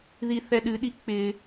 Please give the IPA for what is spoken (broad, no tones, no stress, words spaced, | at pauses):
ðiθɛɗɨɗi k͡pɪ